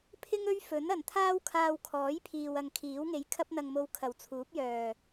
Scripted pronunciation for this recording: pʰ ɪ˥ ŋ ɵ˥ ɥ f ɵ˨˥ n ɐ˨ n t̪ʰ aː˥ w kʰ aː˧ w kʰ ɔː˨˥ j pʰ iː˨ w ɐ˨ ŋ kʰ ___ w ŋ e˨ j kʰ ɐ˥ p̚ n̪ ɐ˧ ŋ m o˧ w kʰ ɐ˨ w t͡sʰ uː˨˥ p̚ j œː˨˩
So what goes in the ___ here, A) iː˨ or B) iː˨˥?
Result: B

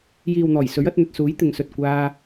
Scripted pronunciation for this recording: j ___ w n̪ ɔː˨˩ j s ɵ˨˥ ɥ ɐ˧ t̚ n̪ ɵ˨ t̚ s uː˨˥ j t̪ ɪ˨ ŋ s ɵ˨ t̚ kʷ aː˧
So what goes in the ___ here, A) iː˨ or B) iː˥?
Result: A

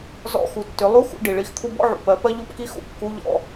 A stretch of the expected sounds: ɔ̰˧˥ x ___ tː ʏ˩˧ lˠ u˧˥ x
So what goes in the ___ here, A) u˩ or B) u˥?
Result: A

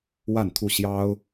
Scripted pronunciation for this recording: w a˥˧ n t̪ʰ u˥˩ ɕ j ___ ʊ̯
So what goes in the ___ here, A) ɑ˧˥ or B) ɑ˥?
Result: B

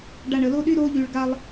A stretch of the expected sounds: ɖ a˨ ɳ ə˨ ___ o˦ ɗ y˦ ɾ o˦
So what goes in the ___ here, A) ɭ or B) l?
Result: B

